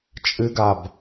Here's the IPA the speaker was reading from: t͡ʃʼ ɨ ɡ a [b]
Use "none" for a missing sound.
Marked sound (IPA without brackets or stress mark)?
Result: b